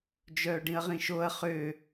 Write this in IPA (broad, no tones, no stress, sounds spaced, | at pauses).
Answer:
d͡ʒ œː ɖ ĩ ɐ̯ ʁ ĩ ʃ o ɐ̯ χ ø